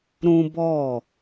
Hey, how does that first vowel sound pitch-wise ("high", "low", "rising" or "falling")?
high